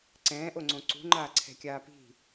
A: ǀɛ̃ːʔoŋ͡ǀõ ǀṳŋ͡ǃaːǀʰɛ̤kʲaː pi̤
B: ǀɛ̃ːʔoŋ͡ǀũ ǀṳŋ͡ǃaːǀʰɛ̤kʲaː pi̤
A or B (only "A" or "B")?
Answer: A